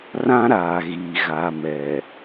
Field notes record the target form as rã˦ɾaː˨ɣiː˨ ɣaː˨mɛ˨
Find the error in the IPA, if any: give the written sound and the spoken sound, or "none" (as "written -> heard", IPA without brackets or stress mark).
none